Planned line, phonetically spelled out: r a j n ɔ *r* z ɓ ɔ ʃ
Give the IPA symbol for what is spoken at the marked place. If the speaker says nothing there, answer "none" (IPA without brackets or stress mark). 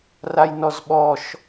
none